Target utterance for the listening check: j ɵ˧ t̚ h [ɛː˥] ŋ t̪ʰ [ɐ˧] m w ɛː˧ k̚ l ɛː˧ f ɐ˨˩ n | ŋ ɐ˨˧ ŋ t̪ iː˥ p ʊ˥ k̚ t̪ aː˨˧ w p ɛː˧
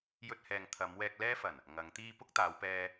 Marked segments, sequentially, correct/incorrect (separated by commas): incorrect, incorrect